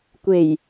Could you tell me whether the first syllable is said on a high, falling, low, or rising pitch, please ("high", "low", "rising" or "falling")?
low